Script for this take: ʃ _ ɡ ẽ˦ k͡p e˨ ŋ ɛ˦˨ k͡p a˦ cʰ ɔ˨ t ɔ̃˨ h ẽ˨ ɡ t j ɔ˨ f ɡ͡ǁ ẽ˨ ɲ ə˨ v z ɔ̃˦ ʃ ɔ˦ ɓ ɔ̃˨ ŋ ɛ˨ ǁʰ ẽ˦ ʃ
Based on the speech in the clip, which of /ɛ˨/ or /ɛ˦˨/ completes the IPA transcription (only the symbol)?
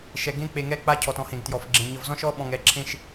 ɛ˨